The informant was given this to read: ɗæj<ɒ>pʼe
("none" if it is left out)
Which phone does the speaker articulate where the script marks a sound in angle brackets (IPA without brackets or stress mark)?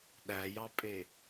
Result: ɑ